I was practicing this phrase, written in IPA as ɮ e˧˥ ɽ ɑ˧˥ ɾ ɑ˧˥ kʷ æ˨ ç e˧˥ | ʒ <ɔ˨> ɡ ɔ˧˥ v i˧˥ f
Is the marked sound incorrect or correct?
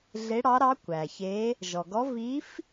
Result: correct